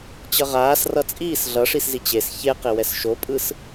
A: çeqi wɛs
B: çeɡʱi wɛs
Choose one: A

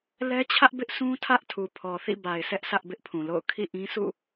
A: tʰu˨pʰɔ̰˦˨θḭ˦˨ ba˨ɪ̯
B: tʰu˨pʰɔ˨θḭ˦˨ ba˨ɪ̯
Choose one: B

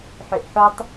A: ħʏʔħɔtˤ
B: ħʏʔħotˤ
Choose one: B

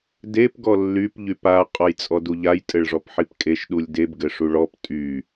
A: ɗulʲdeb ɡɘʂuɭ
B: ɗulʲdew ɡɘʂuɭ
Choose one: A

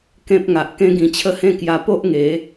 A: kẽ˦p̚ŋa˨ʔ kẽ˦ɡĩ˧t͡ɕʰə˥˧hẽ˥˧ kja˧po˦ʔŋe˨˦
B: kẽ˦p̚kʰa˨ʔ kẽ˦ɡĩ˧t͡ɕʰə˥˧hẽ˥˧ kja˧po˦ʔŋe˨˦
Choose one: A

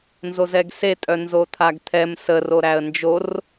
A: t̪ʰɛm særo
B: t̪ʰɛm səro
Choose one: B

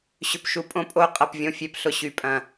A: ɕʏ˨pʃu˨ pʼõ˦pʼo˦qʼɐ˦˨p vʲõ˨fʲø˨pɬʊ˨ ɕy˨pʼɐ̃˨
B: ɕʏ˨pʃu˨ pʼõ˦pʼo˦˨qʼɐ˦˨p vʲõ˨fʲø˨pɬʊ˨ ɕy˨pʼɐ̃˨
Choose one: B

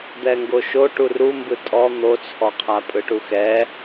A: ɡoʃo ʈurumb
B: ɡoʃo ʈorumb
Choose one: A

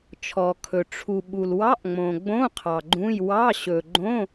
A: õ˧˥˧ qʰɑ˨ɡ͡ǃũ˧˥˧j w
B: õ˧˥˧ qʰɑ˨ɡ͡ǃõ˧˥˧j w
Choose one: A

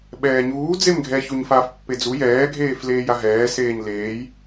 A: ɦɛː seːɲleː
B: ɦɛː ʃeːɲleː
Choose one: A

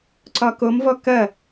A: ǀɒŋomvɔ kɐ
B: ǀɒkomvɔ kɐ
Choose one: B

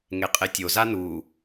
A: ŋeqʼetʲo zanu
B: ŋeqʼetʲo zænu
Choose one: A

